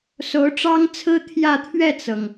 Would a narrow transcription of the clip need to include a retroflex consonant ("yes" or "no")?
yes